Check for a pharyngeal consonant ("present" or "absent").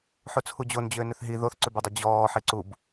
present